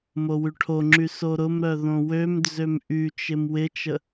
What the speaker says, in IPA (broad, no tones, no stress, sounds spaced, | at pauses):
m o w y ʈʰ o ŋ͡ǁ y s o ɾ ʊ m ɾ œ ð õ w ø m d͡z ø m ʔ y t͡ʃ ɪ m w ɪ t͡ʃ ə